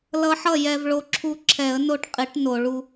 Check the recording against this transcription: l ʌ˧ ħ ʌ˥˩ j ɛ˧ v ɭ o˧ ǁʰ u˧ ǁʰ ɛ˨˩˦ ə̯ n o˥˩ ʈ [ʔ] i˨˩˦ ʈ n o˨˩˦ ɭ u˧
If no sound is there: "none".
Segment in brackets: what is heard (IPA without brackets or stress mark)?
qʼ